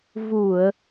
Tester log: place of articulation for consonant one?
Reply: labial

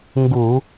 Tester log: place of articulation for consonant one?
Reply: velar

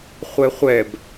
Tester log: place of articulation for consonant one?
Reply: uvular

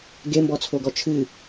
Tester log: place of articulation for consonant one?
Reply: velar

